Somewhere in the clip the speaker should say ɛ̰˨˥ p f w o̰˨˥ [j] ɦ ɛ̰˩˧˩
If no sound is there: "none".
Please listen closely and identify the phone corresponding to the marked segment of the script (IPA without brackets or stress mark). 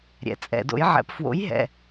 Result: j